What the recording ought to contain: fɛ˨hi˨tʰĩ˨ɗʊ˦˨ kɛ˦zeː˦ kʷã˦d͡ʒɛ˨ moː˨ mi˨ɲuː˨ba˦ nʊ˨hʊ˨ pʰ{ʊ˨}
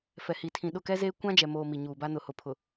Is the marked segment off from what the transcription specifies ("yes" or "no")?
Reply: no